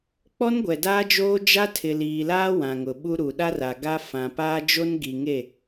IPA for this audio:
k͡p ɔ˦ n ɡʷ ɛ˨ d aː˦ d͡ʒ oː˦ d͡ʒ a˦ tʰ ɪ˨ l iː˨ l aː˦ w ã˨ ŋ ʊ˨ ɓ u˦ ɾ u˨ ɗ a˦ r a˨ ɡ a˦ f ã˨ p aː˦ d͡ʒ o˦ n ɡ i˨ ŋ e˦˨

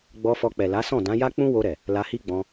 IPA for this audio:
ɡ͡b ɔ˧ f ɔ˧ k͡p ɛ˨ l a˨˦ s ɔ̃˦˨ d ã˨˦ j a˦ k͡p ũ˦ w o˧ ɾ ɛ˨ | l a˧ h i˦ ɡ͡b ɔ̃˧

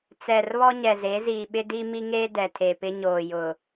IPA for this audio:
t͡s ɛ˨ r β ɔ˦ ɲ ɛ˨ z e˨˦ z iː˨ ɓ ɪ˦ d i˦ m i˦ ŋ eː˦ d ɛ˨ tʰ e˨ p ɪ˦ ɲ oː˨ j ʊ˨

